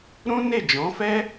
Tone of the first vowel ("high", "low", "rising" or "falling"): high